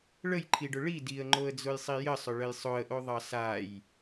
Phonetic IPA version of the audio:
ɭ ə j ǃʰ i ɖ ʊ ɭ i d i ə̯ ŋ͡ǃ o ə̯ d͡z ʊ j sˤ i j ə sˤ ʊ ɭ ə j sˤ ʊ ə̯ ʔ o ðˤ ɑ s a j

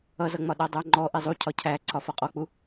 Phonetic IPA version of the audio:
ʌ z ʌ ŋ͡m ɒ ɗ æ dˤ æ ŋ͡ǃ ɔ ʔ i zˤ u cʰ ɒ cʰ æ ǀʰ ɒ f ɒ qʼ ɔ k͡p u

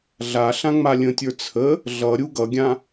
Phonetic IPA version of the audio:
ɮ a ɬ ã ŋ͡m a lʲ ə̃ tʲ ə˞ t͡sʰ ə | ɮ ʌ ɾʲ u ɡ ʌ ɡʲ ã

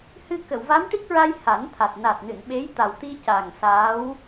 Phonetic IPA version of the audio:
h ɨ˧ k ə˨˩˨ w v a˧˥ m ʈ i˦˥ k̚ ɹ a˧ j h a˨˩˦ n t̪ʰ a˨˩ t̚ n a˨˩ t̚ n ɨ˨˩˨ n ɓ e˧˥ j t̪ a˨˩ w t̪ i˧ c a˨˩ ŋ s aː˧˥ w

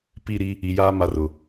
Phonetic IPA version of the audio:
p i˦˨ ɾ i˦ | i˨ j aː˦ m a˦ r ʊ˨

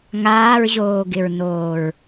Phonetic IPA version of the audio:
ŋ aː ɹ ʑ oː ɡ ɪ ɹ n oː ɹ

